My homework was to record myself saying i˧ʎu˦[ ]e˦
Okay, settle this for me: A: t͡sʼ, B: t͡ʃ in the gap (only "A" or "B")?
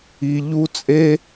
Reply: A